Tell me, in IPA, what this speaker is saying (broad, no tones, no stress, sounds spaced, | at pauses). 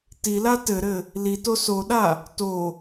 t i l a t ɘ ɾ ɘ | l i t o s o ɗ a | t o